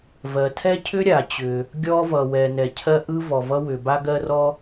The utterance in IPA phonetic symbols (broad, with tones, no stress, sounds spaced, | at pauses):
v ɜ˩ tʰ ɛ˥ cʰ ʏ˥ ɾʲ a˩ t͡ɕ ʏ˩ | ɡʲ ɔ˥ v ʌ˩ w ɛ˩ n ɛ˩ cʰ ɜ˥ ʔ ɯ˥ v ɔ˩ v ʌ˥ w ʏ˩ b a˥ ɡ ɜ˥ r ɔ˥